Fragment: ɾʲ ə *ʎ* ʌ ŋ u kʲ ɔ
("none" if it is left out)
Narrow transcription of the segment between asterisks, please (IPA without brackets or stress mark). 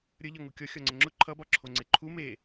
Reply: ʎ